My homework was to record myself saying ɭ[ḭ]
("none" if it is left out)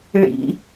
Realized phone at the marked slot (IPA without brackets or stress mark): ḭ